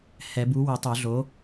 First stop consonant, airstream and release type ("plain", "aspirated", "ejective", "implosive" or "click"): plain